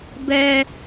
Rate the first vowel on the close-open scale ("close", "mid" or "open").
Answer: mid